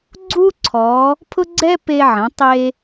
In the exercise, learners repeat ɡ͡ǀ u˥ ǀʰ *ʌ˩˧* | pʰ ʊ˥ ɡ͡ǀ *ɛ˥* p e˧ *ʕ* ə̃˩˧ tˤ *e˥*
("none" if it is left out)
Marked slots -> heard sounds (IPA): ɔ˩˧, ɛ˥, ʕ, e˧

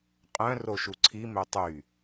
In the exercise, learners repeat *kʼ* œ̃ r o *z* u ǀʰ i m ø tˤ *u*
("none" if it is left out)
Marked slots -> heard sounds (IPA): qʼ, ʃ, y

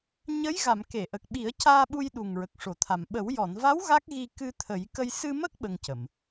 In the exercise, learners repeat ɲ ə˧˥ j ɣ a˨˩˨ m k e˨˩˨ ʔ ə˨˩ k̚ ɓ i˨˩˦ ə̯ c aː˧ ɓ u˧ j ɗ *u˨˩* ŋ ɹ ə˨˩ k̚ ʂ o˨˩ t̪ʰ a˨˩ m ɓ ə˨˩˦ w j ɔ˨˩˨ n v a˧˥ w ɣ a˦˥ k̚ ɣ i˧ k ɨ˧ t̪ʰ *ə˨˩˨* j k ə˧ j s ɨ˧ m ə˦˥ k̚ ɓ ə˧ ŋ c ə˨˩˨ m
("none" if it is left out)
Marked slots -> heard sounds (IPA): u˨˩, ə˨˩˦

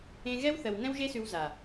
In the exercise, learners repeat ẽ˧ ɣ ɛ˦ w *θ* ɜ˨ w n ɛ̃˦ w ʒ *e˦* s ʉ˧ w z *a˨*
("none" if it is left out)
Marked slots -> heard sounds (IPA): θ, e˦, a˨

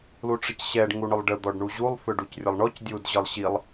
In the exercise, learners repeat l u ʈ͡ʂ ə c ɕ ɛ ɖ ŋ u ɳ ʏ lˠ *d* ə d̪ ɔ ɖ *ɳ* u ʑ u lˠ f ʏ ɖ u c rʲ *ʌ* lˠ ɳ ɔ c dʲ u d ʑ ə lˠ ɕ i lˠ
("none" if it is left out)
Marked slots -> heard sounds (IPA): ɖ, ɳ, ə

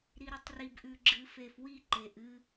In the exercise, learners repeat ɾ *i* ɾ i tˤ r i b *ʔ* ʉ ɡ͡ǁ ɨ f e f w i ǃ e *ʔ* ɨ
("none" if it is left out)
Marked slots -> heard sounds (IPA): i, ʔ, ʔ

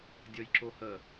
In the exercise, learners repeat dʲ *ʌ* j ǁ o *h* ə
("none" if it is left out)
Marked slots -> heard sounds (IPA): ʌ, h

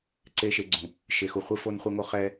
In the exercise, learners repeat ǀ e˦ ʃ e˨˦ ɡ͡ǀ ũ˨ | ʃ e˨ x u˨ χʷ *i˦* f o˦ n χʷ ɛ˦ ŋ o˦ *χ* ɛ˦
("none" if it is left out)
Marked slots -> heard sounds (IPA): i˦, χ

